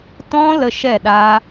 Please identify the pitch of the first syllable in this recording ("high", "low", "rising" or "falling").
high